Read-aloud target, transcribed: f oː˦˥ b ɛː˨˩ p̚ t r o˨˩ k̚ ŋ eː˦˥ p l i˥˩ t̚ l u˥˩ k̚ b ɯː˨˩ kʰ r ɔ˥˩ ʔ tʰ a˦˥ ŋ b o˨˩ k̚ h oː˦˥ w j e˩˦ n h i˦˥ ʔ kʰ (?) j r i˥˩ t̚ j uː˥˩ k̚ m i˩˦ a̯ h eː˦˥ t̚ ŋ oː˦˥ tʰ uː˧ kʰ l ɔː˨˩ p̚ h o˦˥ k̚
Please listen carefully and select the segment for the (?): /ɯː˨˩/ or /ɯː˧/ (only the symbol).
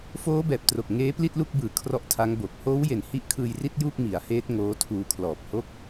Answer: ɯː˧